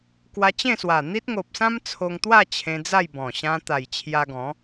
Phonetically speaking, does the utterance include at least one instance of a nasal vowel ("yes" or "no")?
yes